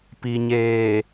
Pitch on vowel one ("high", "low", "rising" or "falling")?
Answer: low